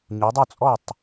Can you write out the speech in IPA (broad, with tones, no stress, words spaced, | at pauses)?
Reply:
ɲu˨˦dˤo˥˨t͡sʼɔ˥˨tˤ